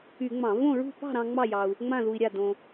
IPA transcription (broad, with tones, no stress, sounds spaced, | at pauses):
y˧˩˧ ŋ͡m ɑ̃˧˩˧ v õ˥˨ ɹ ṳ˥˨ p ɑ̤˥˨ ɾ ɑ̃˧ ŋ͡m ɑ˥˨ j ɑ˧ u̯ | ŋ͡m ã˥˨ ð u˧ i̯ ɾʲ a˥˨ d õ˧